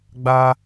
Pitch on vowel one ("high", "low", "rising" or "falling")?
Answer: high